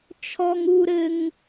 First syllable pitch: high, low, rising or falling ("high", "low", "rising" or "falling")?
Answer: high